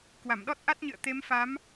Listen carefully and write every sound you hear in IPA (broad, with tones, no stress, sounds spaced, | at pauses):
k w a˧˩ m ɗ ɔ˦˥ t̚ ʔ a˦˥ t̚ ɲ ɨ̰˧˨ ə̯ t̪ e˨˦ m f a˨˦ m